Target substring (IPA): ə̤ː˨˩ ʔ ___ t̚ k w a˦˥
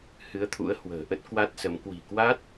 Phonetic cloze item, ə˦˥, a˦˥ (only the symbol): ə˦˥